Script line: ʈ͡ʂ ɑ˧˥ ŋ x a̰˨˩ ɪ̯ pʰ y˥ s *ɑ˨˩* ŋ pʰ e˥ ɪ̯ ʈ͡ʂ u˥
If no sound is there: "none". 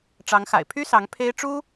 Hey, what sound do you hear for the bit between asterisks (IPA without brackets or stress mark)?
ɑ˧˥